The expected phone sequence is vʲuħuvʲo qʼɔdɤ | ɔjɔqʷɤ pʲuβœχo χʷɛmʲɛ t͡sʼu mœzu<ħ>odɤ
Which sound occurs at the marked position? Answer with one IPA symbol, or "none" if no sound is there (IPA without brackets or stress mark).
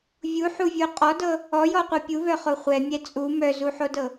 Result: ħ